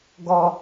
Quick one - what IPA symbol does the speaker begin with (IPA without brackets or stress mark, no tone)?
ɡ